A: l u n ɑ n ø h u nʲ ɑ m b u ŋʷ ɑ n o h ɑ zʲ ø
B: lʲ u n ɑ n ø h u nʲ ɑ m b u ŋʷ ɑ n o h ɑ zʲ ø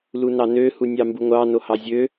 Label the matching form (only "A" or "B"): A